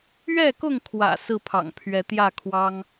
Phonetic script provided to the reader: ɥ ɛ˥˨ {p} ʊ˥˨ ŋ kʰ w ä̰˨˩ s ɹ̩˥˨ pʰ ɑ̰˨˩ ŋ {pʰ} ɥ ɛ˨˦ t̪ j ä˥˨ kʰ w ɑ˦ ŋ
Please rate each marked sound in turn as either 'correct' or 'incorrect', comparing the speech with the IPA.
incorrect: k, correct

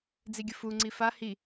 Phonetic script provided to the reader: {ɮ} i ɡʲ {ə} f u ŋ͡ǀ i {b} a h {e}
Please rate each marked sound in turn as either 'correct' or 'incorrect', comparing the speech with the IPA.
incorrect: d͡z, correct, incorrect: f, incorrect: i

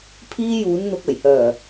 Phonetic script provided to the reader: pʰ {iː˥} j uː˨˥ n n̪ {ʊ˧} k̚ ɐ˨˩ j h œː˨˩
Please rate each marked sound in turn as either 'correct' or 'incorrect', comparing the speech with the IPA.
correct, correct

